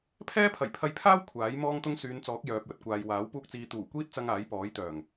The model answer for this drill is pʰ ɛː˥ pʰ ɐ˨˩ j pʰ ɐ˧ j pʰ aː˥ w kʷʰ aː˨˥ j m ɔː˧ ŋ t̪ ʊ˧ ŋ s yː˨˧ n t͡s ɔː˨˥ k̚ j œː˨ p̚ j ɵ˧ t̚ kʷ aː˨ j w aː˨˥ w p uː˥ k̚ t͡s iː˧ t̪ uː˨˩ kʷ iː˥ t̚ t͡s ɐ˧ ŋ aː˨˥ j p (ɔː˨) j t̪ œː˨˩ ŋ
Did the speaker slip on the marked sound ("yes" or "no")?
yes